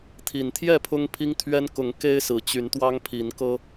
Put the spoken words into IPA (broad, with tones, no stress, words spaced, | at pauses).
t̪ʰi˨˩nt̪ʰjɛ˥˨ pʰʊ˦ŋpʰi˦ŋt̪ʰɥɛ˦n kʊ˨˦ŋke˦ɪ̯ sɹ̩˨˩t͡ɕy˨˦nt̪wɑ˦ŋpʰi˨˦n kɤ˦